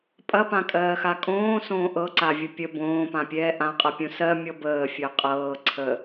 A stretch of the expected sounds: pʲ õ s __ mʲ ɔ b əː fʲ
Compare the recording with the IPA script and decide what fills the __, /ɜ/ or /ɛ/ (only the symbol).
ɜ